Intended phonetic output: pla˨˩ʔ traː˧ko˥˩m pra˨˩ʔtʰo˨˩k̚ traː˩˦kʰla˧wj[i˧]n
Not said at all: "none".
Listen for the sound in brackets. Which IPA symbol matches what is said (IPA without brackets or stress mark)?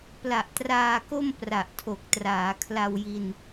i˧